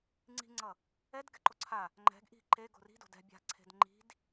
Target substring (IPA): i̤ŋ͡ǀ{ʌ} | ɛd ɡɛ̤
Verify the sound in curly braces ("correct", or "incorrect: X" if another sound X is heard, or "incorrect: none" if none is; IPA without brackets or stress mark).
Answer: correct